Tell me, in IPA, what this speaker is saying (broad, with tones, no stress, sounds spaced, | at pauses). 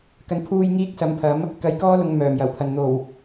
k ɐ˨˧ n pʰ uː˧ j ŋ iː˥ k̚ s ɐ˨˧ m pʰ ɐ˨˥ m | k ɐ˨˧ j k ɔː˥ l ʊ˨˧ ŋ m œː˨˩ m j ɐ˨˩ w pʰ ɐ˨ n n̪ o˨˩ w